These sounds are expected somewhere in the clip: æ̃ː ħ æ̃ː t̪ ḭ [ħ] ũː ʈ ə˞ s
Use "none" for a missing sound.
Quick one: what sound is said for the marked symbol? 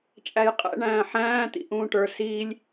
ʔ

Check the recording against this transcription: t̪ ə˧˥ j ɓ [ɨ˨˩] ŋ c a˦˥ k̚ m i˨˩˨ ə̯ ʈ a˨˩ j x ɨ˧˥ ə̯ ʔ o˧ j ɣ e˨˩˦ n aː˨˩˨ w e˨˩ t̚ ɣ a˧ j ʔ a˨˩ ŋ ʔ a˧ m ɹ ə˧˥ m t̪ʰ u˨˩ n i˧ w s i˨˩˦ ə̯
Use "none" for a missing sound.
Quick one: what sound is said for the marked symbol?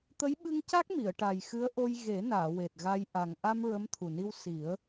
ɨ˧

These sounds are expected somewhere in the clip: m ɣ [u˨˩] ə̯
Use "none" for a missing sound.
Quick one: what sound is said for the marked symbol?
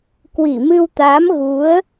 u˨˦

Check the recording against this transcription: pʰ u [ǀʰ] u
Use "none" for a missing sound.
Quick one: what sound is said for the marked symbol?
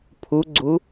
ɡ͡ǀ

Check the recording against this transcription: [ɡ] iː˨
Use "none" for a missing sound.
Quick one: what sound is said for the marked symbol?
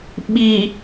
ɓ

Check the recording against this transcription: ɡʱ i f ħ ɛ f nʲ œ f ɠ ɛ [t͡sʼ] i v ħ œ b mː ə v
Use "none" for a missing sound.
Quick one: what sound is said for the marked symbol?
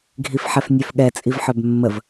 t͡sʼ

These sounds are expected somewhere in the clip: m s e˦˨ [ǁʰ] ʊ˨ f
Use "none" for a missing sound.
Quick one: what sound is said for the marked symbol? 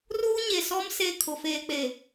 kʰ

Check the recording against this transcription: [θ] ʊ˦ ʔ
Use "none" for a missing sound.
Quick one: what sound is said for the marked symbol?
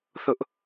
θ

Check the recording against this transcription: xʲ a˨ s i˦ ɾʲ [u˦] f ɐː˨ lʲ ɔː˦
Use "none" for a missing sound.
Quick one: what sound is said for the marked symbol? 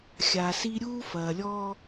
uː˦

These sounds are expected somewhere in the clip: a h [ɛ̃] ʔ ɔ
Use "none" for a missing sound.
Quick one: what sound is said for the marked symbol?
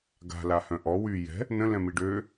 œ̃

